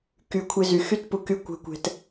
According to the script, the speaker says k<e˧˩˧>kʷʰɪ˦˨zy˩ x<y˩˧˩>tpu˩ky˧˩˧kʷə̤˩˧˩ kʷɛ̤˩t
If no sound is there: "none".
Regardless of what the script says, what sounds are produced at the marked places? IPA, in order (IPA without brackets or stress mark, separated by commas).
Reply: y˧˩˧, y˦˨